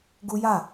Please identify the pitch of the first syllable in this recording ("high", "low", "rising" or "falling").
high